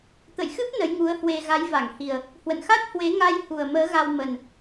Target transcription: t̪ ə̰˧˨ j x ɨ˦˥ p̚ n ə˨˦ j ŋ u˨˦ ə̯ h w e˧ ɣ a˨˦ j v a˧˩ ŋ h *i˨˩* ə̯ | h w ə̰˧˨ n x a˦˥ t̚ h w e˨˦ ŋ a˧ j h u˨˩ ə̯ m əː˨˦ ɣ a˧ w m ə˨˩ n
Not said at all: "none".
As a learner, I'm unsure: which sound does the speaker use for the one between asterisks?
i˨˩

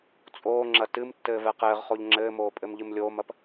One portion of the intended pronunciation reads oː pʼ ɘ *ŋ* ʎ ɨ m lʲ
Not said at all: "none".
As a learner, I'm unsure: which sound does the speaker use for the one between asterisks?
m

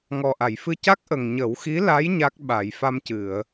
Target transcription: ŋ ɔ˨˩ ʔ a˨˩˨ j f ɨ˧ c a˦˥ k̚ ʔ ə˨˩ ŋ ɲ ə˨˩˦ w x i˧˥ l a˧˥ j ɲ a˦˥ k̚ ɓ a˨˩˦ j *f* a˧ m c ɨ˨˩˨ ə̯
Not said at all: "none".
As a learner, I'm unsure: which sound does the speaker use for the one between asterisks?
f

